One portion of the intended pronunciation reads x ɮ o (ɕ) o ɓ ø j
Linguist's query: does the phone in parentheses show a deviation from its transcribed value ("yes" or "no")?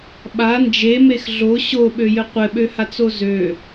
no